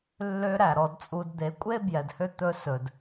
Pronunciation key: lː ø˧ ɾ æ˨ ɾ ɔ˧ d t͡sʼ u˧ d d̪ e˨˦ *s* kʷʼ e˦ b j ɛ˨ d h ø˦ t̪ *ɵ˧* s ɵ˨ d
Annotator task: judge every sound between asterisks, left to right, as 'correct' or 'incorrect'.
incorrect: none, correct

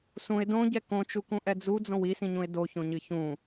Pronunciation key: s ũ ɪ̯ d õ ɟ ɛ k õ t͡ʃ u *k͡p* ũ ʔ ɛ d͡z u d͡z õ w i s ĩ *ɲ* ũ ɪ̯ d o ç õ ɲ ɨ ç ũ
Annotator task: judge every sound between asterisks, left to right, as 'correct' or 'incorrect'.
incorrect: k, correct

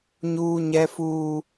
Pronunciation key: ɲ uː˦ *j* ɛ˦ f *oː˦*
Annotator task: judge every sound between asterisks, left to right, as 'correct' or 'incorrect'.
incorrect: ɲ, incorrect: uː˦

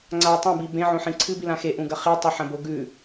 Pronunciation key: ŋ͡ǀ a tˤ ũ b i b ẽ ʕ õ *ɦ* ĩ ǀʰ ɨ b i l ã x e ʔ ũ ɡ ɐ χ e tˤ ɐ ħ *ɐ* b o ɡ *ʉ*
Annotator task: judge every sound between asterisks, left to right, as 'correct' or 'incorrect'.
incorrect: ħ, incorrect: ɐ̃, correct

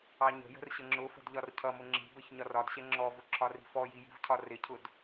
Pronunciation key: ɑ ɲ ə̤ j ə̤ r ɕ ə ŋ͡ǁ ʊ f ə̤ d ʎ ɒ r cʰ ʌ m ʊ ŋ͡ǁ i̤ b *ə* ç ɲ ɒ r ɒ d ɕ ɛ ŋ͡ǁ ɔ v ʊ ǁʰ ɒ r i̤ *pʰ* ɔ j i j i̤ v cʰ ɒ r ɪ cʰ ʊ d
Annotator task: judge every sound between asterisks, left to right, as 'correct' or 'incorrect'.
correct, incorrect: f

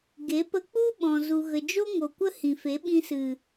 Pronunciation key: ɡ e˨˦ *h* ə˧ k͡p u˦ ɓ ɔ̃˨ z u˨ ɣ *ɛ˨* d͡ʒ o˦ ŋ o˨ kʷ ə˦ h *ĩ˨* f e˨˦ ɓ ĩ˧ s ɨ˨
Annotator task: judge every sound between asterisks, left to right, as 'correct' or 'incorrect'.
incorrect: p, incorrect: ə˨, correct

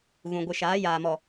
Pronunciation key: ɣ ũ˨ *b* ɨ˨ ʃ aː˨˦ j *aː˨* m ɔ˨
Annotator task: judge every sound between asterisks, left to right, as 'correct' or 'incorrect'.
incorrect: ɡʷ, correct

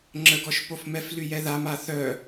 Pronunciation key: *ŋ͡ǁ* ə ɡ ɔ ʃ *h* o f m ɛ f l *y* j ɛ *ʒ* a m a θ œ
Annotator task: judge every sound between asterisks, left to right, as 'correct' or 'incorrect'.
correct, incorrect: p, correct, incorrect: ð

